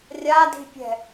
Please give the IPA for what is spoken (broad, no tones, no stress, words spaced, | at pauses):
rʲadi̤pʲɛ̤